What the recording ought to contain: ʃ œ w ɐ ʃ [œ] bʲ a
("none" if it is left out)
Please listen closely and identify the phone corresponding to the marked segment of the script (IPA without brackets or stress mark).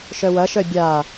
œ